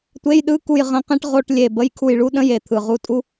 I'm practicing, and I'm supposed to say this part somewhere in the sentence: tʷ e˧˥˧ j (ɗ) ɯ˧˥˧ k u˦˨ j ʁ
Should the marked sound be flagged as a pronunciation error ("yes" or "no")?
no